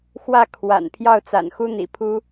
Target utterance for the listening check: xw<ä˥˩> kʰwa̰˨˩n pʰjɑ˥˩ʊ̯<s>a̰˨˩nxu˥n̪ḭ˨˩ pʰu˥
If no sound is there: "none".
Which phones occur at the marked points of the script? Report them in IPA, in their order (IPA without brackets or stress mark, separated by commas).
ä˥˩, t͡s